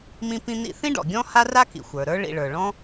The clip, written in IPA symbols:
mĩ˦pĩ˦n̪ḭ˦ θĩ˥ɖɔ̰˩ɡʲɔ̃˥ ha˦ra˦ kḭ˩xʷə˞˩ɾə˞˦ ɭḭ˨ɭə˞˩ɭɔ̃˥

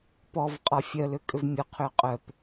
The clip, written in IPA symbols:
pɔv qʼɒfʲœlʏ kʼʏvmʲʊqʰʏː qʼœp

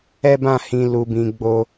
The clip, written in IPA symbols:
ɛ˦bã˦˨hĩ˧ lu˧bĩ˧ ɡ͡bo˦

